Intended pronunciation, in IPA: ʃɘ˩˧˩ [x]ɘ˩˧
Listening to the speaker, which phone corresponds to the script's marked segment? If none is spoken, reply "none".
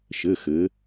x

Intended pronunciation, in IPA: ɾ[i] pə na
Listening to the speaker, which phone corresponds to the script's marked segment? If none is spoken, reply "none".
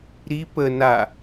i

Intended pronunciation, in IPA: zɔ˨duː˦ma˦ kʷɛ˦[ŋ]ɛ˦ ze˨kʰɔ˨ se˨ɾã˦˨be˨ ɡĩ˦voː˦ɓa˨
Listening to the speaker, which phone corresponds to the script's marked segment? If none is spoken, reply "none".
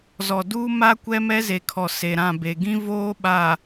m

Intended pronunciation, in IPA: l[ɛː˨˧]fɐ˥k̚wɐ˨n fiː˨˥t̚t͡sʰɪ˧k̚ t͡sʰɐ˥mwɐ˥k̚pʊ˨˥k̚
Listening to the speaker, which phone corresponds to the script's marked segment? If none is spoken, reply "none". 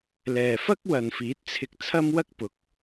ɛː˨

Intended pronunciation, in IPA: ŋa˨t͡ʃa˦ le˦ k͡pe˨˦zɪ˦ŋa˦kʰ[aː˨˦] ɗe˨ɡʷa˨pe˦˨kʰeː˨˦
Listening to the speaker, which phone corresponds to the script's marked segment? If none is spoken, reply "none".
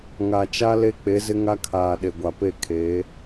aː˨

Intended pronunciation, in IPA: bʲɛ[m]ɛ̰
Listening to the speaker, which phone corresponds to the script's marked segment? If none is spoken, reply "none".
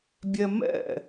m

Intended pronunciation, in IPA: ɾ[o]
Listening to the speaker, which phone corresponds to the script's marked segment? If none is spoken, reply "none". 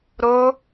o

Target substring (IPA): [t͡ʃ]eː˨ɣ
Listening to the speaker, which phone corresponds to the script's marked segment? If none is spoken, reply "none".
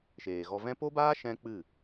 ʃ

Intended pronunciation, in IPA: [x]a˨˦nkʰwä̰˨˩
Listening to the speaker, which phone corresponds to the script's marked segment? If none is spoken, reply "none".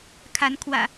kʰ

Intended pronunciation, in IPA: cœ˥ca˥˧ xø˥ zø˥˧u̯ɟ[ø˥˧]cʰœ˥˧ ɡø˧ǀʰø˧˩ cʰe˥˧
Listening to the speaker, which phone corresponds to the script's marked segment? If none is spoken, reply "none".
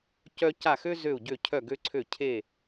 ø˥˧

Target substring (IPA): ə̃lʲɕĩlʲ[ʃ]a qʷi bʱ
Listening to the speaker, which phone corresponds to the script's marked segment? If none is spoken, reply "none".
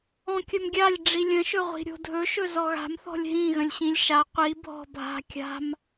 ʃ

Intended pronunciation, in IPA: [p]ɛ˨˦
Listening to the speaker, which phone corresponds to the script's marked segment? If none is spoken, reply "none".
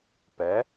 p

